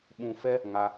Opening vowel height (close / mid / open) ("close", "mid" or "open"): close